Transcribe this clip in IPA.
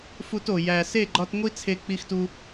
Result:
fu˧to˨ jæ˨se˦˨ɡ͡ǃɒ˧tŋʷi˦ t͡sʰe˧k͡pi˧xtu˧

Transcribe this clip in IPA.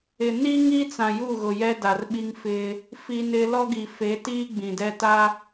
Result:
ɪ˨ni˦ŋi˦t͡sã˨ ju˦˨ɣʊ˨ jɛ˦da˨rɓi˦ŋfɪ˦ | fi˦nɪ˦ lɔ˦ɡi˨fe˨˦tiː˦ ɡ͡bĩ˨ dɛ˦ta˦

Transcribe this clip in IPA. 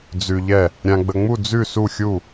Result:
d͡zʉ˧ʎɛ˥˨ | ɾʲã˧ɡ͡bə˧ŋ͡mu˥˨ d͡zʉ˥˨su˥˨xʲu˥˨

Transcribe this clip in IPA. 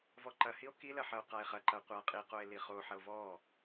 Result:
vɔǃɐhio̯ kilɐ ħɐo̯qae̯χɐǃɐo̯ qʷa qʼiqoe̯ liχoħɐo̯ vɔ

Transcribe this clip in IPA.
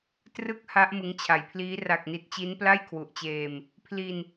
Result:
trɯ˥˩k̚ha˦˥ʔ mɯ˧ŋt͡ɕʰa˨˩jpʰliː˦˥ ra˨˩k̚ni˨˩t̚ t͡ɕi˦˥npla˥˩jkʰwu˨˩ʔt͡ɕeː˧m | pʰli˧n

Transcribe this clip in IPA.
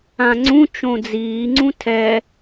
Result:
ãŋ͡ǀũ t͡ʃõd͡ziːŋ͡ǀũ tʰɛ

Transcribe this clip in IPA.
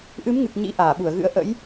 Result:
ʔɨ˨˦mŋɨ˨˩k̚ ɲḭ˧˥ʔaː˧˩ɓu˧˩ə̯ɣɨ̰˧˥ə̯ ʔə̰˧˥j

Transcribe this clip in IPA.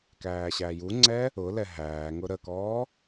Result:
kæːɕæjuŋ͡ǀɛ | ʊ lɛɦæːŋʊ ɾəkɔː

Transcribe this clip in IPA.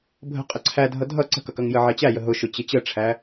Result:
bʱə̤ qʼəǀʰædʱʌ dʱʌ ǀə̤kʌkʌŋjə ʕɛt͡ɕæjə ɦʊʃʊt͡ɕɪ t͡ɕəʈ͡ʂʰæ

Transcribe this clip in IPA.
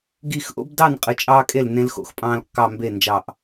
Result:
ɡi˧˩xʔo̰˦bdɑ˥˩n qʼɯ˩˧˩t͡ʃʼɑː˦kʼe˥˩l nẽ˦lxo̰˧˩xpʼɑ̃ː˦lkːɑ˥˩ mbe˥˩nd͡ʒɑ˧˩ʔ

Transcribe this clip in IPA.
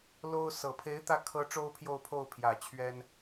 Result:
lo˥ʊ̯ sɤ˨˩ pʰe˧˥ɪ̯t̪ä˧˥kʰɤ˧˥ ʈ͡ʂo˥ʊ̯pʰjo˥˧ʊ̯pʰo˥˩ʊ̯pʰjä˨˩ t͡ɕʰɥɛ˥n

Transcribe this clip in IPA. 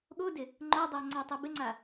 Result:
ɠodɪ | ŋ͡ǃodˤa ŋ͡ǀatˤɪbɪŋ͡ǀa

